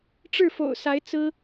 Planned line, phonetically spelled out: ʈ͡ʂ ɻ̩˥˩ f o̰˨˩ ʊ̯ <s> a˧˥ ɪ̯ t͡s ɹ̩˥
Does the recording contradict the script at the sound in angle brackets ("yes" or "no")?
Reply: no